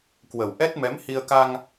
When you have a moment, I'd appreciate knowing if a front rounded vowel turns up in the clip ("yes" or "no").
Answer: no